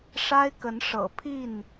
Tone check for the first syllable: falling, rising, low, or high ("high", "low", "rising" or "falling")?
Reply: high